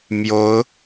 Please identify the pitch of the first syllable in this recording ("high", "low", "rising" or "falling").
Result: rising